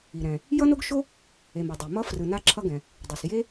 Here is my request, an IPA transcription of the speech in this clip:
i˩ ɾ ɛ̃˩ | j ʌ˥ n o˥ ɡ ʃ o˥ | e˩ m ʌ˩ dˤ o˩ m ʌ˥ f r ɯ˩ n a˥ ǁʰ ʌ˥ ɡ ɛ̃˩ | dˤ u˩ s j e˥

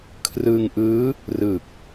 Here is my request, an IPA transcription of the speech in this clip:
kʰ r ɯ˧ ŋ ʔ ɯː˦˥ | r ɯ˨˩ k̚

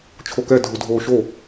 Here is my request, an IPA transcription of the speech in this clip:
t͡ʃʰ o k ɛ dʱ u dʱ oː ʃ o

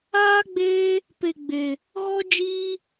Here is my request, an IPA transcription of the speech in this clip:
aː˦ ɡ͡b eː˦ | p e˧ ɡ͡b e˧ | ɣ ɔ˦ d͡ʒ iː˦

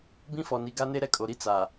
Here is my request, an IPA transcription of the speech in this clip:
b ĩ˦ f ɔ˨ n i˨ ɡ a˦ n e˦ ɾ ɛ˦ kʼ o˨ ɾ i˦ t͡s a˨

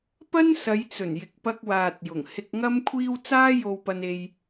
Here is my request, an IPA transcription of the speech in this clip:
p ɐ˥ n s ɐ˨˧ j t͡s ɵ˨˩ n j ɪ˨˥ k̚ p ɐ˧ k̚ w aː˨ t̚ j ʊ˨˩ ŋ h ɪ˧ k̚ ŋ ɐ˥ m kʷʰ iː˥ w t͡s aː˥ j o˧ w p ɐ˧ n e˥ j

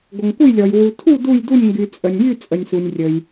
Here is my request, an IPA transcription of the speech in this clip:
ɡʷ ə˨ ŋ kʷ ə˥˧ j lʲ ɔ˨ j w u˨ tʰ u˥˧ d u˥˧ j d u˥˧ nʲ ŋ ɡ y˨ t͡sʼ ə˨ nʲ j y˥˧ t͡sʼ ə˨ nʲ s u˨ nʲ rʲ ə˨ j

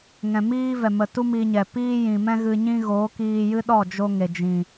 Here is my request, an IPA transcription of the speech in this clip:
ŋ ɛ̃˨ m iː˦ v ɛ˨ m ə˨ t u˦ m i˧ ɲ ɛ˨ p iː˦ j ĩ˨ m ɛ̃˦ ɣ ɨ˧ ɲ ĩ˦ ɣ oː˨˦ k iː˧ j ɨ˦ ɗ ɔ˦˨ d͡ʒ o˦ ŋ e˨ d͡ʒ ĩ˨

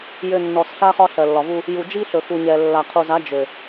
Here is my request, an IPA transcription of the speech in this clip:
j ø˨ nː ɔ˨ s ɬ a˦ χ ɒ˦ ɬ ɜ˨ lː ɒ˨ v u˦ | j u˨ d͡ʒ i˦ ɬ ɵ˨ x u˨ ɲ ɛ˨ lː a˨ qʰ u˨ z a˨˦ d͡ʒ ø˨

